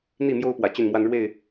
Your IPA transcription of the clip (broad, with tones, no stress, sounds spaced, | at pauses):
n̪ i˥˨ m j o˦ ʊ̯ p w ä˨˩ t͡ɕ y˥˨ n m w a˦ n ɻ w e˥˨ ɪ̯